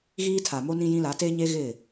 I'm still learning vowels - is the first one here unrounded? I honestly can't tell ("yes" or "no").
yes